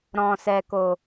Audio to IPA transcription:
ɾ ɔ̃˨ s ɛ˨ k o˨

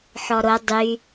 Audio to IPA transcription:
ħ ɔ ɾ o dˤ y

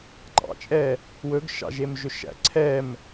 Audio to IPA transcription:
ŋ͡ǃ ɑ̰ t͡ʃʼ ɛ | w ɵ ɡ ʃ ɑ̰ ʒ e m ʒ ɵ ʃ æ̰ ǀʰ ɛ m

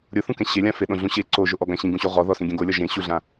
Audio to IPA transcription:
ɾʲ ʊ θ ũ k ɛ̃ ɕ e lʲ ã f ɪ ɗ õ ɮ ũ ɕ e ǀ o ʒ o ʔ ɔ ɡ ã ɕ ĩ ɡ ũ ɕ o ʁ ɔ ð ɔ s ĩ ɡʲ ɛ̃ ɡ o lʲ ɔ ʒ ẽ ɕ u ɮ ã

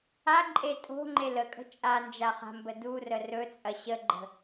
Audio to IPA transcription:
a ǃʼ e tʼ o̤ ŋ͡ǃ e l ə kʼ ə̤ t͡ʃʼ a n d͡ʒ a χ a̤ m b ə d u r ə r ɵ t͡sʼ ɐ ɕ ə ɡ͡ǃ ə̤

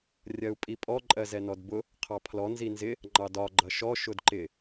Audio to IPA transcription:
rʲ ɜ u̯ pʼ i pʼ ɔ ǃʼ ɜ z ɛ n ɔ d b ʊ | qʰ ɑ pʰ l ɔ n z i n z ɪ | ŋ͡ǃ ɑ d ɒ ɡ͡ǃ ʌ ʃ ɔ ʃ ʊ d ǃ ɪ

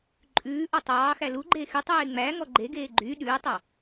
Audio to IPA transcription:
ǃʼ ʉː ʔ ɔ tˤ ɑː x æ l u ɡ͡ǃ eː x y tˤ eː ŋ͡m æ ŋ ɔ ɡ͡ǃ e ɡ eː ɡ͡ǃ y ɗ ʉː tˤ ɑ

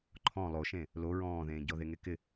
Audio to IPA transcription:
ǃʰ ɔ̃ lˠ o ʃ ẽ | l o ɹ ɔ̃ː ð ẽː ɟ ɔ ð e ŋ e k ɪ

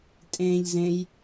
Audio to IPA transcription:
tʼ ẽ ʎ z ẽ j

